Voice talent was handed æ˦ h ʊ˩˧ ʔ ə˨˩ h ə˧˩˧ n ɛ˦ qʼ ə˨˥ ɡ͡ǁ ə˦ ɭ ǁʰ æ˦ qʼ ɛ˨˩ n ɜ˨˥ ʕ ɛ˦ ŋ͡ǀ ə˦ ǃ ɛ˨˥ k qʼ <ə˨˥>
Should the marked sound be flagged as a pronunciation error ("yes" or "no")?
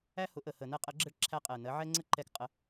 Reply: no